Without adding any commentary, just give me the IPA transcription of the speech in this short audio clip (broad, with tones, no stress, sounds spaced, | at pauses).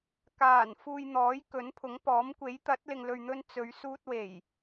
k aː˨˩ n f uː˨ j n̪ ɔː˨˥ j k ɵ˨˥ n pʰ ʊ˨˥ ŋ p ɔː˨˥ m kʷ e˨˥ j t̪ ɐ˨˥ t̚ l ɪ˨ ŋ l ɵ˨ ɥ n̪ ɵ˧ n t͡s ɵ˨˧ ɥ s uː˧ t̚ w e˨˩ j